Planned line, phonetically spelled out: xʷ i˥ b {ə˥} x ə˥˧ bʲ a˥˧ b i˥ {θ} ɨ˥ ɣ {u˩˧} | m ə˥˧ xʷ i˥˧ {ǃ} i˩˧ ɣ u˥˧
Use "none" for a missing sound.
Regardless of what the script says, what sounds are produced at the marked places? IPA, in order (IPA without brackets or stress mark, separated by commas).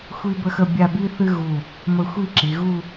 ə˥, θ, u˧˩, ǁ